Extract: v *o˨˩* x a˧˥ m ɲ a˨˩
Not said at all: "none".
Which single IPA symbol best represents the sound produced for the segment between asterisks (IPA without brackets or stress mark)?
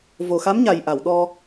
o˨˩